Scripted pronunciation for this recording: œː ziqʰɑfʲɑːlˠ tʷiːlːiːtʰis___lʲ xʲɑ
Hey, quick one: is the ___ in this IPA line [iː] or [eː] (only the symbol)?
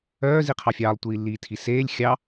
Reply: eː